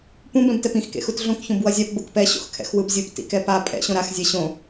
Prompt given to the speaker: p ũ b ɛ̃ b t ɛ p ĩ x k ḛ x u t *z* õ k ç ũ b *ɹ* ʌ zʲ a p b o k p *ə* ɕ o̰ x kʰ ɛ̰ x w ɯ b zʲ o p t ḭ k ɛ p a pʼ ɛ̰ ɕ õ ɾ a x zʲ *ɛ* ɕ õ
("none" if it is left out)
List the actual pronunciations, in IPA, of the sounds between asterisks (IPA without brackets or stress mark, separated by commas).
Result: ɮ, w, ɛ, ɛ